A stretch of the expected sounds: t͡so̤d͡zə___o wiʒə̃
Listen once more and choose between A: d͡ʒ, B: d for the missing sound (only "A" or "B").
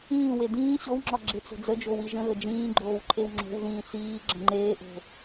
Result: A